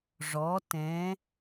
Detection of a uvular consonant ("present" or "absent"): absent